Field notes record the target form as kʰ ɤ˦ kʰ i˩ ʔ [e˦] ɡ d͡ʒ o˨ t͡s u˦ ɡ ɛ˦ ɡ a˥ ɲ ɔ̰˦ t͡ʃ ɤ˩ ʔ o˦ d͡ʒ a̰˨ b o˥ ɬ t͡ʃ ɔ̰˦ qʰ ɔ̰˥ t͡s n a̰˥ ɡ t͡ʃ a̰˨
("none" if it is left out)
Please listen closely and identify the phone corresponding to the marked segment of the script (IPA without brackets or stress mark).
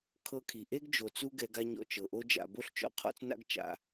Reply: e˥